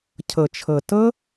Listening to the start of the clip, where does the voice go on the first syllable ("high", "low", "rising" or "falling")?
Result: low